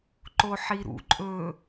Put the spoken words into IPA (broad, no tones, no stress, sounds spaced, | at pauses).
ǃ o ħ i ɾ ṵ ǃʼ ɵ